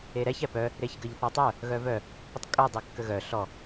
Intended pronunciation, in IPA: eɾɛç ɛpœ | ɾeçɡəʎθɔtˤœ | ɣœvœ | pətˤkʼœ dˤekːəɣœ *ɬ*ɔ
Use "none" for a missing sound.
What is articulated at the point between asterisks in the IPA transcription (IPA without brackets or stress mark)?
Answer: ɬ